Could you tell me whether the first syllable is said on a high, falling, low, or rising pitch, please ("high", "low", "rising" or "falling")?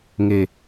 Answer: low